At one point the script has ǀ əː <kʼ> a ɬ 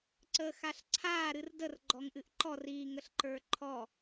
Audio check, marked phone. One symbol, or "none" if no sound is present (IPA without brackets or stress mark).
x